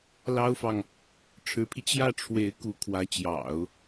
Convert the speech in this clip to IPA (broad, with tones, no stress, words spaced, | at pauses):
lɑ˥ʊ̯fɑ˨ŋ | ʈ͡ʂʰɻ̩˧˥pʰi˧ t͡ɕjä˥˩ʈ͡ʂʰwe˧˥ɪ̯ ku˧˥kʰwä˧˥ t͡ɕjɑ̰˨˩˦ʊ̯